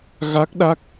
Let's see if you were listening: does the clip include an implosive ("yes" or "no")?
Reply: yes